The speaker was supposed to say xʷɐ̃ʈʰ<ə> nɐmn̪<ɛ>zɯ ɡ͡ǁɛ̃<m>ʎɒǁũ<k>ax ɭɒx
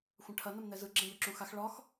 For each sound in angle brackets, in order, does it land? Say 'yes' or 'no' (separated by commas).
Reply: no, yes, no, no